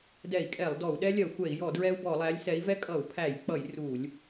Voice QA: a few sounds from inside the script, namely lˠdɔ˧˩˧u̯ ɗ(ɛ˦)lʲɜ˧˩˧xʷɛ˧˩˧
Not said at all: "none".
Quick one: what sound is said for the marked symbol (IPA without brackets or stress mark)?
ɛ˦